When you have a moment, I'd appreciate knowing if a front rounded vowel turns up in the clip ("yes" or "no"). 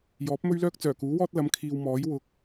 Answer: yes